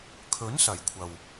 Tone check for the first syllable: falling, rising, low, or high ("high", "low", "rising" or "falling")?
rising